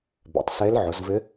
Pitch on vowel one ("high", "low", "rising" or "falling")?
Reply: low